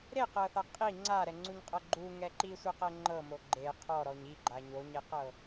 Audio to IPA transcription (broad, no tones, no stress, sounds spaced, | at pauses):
ɾ e q ɤ θ a qʼ i ŋ͡ǀ a ɾ ɛ ŋ͡ǀ u ɲ qʼ ɤ ɡ͡ǃ u ŋ ɛ ǃ i sʷ e q ɛ ŋ͡ǃ ɤ m o ɡ͡ǃ e qʰ ɔ ɾ ɔ ɲ i ɡ͡ǃ a ɲ o ɲ e q ɤ